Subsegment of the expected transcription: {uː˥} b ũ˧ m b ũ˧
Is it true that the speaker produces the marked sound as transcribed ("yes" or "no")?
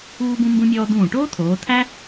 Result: no